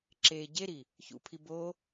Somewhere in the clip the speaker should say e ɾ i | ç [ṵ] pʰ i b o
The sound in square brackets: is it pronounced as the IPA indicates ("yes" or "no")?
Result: yes